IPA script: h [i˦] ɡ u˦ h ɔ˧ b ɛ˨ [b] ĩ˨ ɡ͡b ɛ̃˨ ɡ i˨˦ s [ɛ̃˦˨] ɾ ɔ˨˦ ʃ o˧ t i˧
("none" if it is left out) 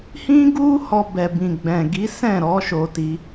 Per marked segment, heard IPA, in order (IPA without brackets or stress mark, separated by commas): ĩ˦, b, ɛ̃˦˨